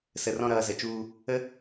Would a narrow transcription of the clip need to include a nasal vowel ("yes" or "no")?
yes